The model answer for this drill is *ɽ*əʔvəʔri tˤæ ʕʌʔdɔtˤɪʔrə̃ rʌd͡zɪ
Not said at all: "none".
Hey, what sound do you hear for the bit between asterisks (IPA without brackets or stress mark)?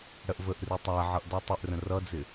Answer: ɽ